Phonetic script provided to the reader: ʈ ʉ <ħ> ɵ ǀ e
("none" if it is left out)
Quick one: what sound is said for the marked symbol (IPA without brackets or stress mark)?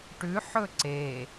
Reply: ħ